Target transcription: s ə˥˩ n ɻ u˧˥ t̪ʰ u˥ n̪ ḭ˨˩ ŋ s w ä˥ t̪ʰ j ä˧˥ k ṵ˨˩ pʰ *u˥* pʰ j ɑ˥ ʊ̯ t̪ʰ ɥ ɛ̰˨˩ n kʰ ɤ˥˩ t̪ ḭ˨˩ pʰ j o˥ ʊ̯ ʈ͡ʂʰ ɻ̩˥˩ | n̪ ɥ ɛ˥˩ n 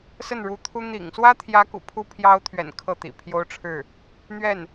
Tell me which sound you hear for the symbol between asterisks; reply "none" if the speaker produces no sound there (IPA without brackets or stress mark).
u˥